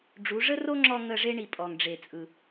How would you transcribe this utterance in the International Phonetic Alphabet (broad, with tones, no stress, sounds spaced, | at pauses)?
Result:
ɖ͡ʐ u˨˦ ʐ ə˦ r o˦ ŋ͡ǁ ɔ˧ ŋ ə˧ ʐ e˦ ɳ i˨ pʼ ɔ˨ ŋ ɖ͡ʐ e˨ t͡sʼ ɯ˨